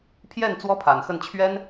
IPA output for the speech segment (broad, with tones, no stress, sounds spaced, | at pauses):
pʰ j ɛ˥˩ n t͡s w ɔ˥ pʰ a˨˩ n x ə˥˩ n t͡ɕʰ ɥ ɛ˥ n